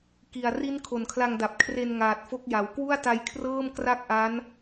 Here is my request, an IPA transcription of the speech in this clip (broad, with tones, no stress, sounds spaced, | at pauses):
k i˨˩ a̯ r i˦˥ n kʰ o˨˩ n kʰ l a˧ ŋ d a˨˩ p̚ kʰ r e˧ n ŋ aː˨˩ t̚ f o˦˥ k̚ j a˩˦ w k w u˥˩ a̯ t a˧ j kʰ r ɤː˥˩ m k r a˥˩ k̚ ʔ a˦˥ n